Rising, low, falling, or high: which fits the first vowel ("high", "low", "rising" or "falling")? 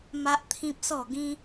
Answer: high